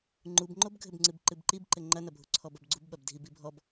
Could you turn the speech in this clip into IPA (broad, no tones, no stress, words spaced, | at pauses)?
ŋ͡ǃubŋ͡ǃobɡʱɘbŋ͡ǀɨb ǃɨbǃib ǃɘŋ͡ǃɐnɐ bʱuǀʰɔbɐbɡ͡ǀub ɓɐbdʱibibʱɔb